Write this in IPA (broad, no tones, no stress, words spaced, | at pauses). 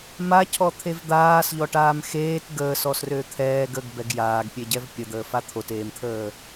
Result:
macʰɔt̪ʰev d̪aːsʎɔʈaːm xeːt ɡəːsɔsrø t̪ʰɛːɡ əɡbɛɡ jaːɡpʲeɟɛv pʲəd̪əːfa t̪ʰoteːmt̪ʰəː